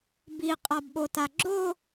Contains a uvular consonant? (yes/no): yes